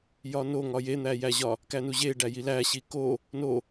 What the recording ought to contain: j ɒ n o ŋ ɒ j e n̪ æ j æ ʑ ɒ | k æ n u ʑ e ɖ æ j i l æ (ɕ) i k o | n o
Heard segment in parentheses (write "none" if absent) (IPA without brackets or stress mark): ɕ